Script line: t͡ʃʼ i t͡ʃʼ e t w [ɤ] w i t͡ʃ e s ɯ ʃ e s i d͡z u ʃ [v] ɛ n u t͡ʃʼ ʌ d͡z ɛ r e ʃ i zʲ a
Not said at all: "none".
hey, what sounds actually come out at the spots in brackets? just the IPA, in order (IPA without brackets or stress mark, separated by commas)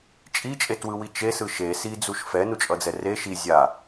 ɯ, f